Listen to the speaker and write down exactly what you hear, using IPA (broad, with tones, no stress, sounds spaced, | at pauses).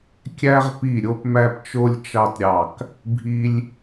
kʲ æ˧ ʁ p i˧˩ ɾʲ o˧ p m æ˧ p t͡ʃ o˧ lʲ t͡ʃ ɑ˧ t ɾʲ ɑ˧˩ k | bʱ i˧ lʲ